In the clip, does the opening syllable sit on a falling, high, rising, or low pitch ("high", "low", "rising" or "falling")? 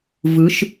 rising